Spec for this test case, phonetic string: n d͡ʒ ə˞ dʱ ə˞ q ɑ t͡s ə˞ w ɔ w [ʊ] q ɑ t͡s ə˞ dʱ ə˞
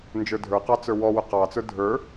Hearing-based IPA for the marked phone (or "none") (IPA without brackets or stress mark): ʊ